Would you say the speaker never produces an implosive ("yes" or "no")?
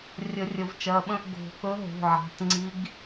no